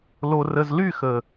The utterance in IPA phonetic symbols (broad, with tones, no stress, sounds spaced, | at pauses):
l o˨ r ə˨ z l y˦˨ x ə˨